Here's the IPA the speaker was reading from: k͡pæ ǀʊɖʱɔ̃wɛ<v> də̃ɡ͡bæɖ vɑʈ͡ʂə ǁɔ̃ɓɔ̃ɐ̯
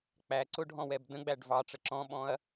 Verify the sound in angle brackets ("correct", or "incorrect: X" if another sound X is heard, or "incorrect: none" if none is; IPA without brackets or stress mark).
incorrect: b